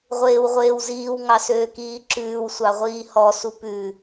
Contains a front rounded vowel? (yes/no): yes